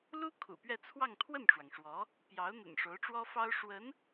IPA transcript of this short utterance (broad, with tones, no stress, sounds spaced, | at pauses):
l u˥ kʰ ṵ˨˩ p ɥ ɛ˥˧ t͡sʰ w ɑ˥˧ ŋ t̪ʰ w ə˥˩ n ʈ͡ʂ w ɑ˩ ŋ ʂ w ɔ˧˥ | p j ɑ˧˥ ʊ̯ n̪ ə̰˨˩ n ʂ o˧˥ ʊ̯ ʈ͡ʂ w ɔ˥ f ɑ˥ ʊ̯ ʂ w ə˧˥ n